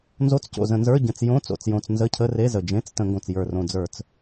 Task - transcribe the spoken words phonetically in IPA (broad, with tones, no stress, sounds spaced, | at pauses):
n z o˧˥˧ t͡s c o̰˨˩ z ə̃˧˩˧ n z ə˞˧˥˧ ɟ ə̃˨˩ t͡s j õ˧˥˧ t͡s o̰˨˩ t͡s j õ˨˩ t͡s n z ə˧˥˧ cʰ ə˧˥˧ r e˧˥˧ z ə˨˩ d͡ʒ ẽ˧˥˧ t͡s t ə̃˧˩˧ ŋ ɡ õ˨˩ t͡s j ə˞˨˩ r õ˨˩ d͡z ə˞˧˩˧ t͡s